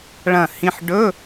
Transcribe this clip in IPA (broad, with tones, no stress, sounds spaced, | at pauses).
ɭ ɐ̃˧˩ h ĩ˧ ħ ɖ ɵ˧˥˧